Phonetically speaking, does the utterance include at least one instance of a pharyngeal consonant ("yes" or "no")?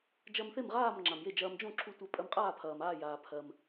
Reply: no